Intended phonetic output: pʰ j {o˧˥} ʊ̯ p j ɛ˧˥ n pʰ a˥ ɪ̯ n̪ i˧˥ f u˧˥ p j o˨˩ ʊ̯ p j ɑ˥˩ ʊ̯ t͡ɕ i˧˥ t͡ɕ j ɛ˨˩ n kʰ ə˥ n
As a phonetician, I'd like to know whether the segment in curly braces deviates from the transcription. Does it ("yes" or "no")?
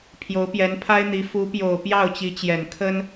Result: no